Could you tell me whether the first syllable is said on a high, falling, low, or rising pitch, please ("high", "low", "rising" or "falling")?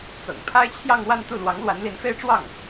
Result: low